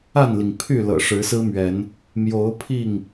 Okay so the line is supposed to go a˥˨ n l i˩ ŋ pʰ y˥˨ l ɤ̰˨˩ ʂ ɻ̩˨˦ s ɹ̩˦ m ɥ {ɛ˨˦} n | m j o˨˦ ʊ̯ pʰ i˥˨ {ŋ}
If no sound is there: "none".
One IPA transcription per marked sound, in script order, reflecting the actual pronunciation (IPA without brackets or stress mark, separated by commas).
ɛ˨˦, ŋ